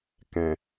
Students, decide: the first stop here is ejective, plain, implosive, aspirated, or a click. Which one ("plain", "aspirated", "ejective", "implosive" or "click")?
plain